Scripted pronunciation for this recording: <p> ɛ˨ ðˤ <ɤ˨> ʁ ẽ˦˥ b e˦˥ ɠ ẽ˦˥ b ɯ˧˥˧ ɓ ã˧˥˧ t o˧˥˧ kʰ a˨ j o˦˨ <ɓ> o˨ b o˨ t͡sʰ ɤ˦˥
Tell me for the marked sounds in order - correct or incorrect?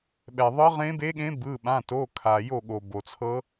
incorrect: ɓ, incorrect: ɤ˦˥, incorrect: ɠ

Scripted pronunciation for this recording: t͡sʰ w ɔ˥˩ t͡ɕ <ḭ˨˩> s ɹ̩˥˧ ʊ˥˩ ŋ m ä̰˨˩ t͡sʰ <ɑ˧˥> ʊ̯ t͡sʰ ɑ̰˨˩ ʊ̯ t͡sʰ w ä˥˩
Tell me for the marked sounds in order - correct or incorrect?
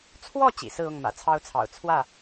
correct, incorrect: ɑ˥

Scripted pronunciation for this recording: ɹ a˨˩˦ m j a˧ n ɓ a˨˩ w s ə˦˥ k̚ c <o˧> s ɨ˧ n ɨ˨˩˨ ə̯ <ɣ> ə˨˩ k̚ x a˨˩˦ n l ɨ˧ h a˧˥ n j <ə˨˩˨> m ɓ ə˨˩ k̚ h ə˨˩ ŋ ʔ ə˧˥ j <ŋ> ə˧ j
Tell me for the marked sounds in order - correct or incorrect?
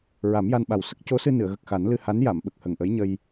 incorrect: o˧˥, correct, incorrect: a˨˩˨, incorrect: ɲ

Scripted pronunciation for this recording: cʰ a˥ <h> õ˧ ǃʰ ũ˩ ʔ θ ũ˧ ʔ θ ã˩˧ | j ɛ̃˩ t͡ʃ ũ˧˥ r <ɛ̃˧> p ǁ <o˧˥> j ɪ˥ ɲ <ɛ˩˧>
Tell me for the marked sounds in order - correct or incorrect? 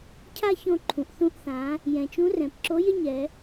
incorrect: ç, incorrect: ɛ̃˩, correct, correct

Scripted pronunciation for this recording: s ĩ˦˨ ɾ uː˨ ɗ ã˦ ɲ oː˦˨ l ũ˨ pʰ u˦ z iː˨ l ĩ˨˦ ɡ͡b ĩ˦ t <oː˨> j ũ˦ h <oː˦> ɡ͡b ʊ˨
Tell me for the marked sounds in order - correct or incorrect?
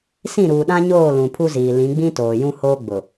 correct, correct

